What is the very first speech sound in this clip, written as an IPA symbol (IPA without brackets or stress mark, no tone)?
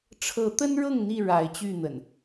ʈ͡ʂʰ